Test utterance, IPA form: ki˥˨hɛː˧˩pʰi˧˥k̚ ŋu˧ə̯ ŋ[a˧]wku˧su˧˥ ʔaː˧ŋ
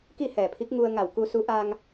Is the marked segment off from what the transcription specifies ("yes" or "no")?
yes